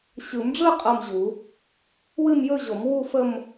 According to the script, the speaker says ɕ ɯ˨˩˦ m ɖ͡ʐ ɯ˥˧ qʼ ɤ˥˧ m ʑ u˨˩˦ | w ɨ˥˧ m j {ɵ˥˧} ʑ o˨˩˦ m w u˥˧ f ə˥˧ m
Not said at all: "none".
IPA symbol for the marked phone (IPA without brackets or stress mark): ɵ˥˧